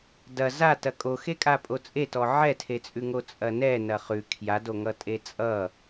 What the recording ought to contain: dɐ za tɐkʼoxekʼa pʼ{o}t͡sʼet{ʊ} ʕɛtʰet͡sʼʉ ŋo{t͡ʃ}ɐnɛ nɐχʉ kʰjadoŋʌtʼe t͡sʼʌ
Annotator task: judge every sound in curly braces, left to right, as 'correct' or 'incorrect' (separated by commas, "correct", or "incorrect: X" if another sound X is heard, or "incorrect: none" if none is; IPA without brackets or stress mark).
correct, incorrect: ɔ, incorrect: t͡sʼ